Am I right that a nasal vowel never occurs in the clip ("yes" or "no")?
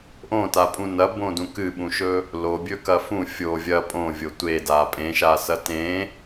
no